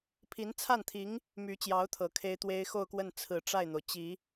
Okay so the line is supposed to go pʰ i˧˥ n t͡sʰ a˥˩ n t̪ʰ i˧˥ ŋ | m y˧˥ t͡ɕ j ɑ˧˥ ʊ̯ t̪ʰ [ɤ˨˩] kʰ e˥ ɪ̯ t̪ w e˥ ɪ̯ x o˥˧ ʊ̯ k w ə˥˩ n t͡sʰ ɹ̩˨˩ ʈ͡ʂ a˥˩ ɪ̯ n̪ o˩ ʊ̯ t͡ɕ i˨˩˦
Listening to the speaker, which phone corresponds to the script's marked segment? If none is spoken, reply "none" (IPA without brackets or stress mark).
ɤ˨˩